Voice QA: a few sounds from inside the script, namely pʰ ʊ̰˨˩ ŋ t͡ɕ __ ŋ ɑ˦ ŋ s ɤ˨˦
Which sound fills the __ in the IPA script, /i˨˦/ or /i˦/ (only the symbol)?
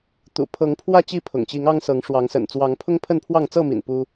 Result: i˨˦